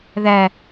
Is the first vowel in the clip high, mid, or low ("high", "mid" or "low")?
low